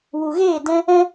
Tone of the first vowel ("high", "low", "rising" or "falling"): low